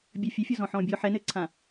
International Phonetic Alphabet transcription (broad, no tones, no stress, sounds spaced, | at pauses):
bʲ ɵ fʲ ɛ fʲ ɔ z ɔ̃ ħ ɔ̃ː bʲ ɔ ħ ɛ n ɘː ǀʰ ã